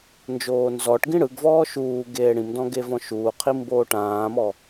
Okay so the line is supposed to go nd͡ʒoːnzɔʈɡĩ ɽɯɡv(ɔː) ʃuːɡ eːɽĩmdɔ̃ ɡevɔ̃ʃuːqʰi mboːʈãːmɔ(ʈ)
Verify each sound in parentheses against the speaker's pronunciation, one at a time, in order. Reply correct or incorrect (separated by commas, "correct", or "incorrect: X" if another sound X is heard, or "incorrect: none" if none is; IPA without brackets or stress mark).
correct, incorrect: none